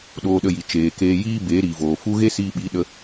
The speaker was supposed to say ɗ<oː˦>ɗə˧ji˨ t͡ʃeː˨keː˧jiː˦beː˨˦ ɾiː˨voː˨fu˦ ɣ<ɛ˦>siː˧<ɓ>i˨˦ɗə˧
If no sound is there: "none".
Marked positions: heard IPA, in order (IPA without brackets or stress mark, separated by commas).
oː˧, e˦, ɓ